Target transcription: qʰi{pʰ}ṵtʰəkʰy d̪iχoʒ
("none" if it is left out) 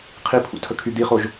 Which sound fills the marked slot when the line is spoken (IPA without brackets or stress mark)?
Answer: pʰ